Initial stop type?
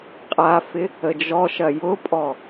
ejective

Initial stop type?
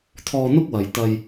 aspirated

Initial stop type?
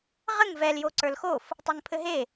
click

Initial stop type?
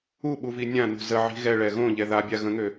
implosive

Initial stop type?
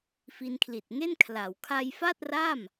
aspirated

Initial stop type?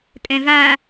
ejective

